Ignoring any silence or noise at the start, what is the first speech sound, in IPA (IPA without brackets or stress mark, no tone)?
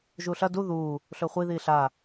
ʒ